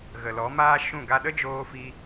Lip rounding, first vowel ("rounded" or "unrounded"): unrounded